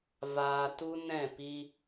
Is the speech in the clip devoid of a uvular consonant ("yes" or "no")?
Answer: yes